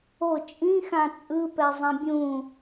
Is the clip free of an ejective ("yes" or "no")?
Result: no